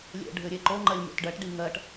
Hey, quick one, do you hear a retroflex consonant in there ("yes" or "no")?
yes